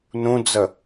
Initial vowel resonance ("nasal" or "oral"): nasal